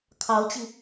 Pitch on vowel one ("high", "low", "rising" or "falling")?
rising